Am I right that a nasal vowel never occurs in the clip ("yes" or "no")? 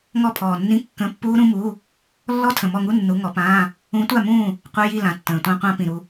no